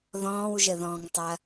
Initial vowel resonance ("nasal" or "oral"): nasal